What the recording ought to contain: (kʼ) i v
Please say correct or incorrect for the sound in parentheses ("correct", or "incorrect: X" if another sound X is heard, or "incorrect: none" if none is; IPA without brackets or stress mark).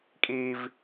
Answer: correct